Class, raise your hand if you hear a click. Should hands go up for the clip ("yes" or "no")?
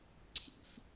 yes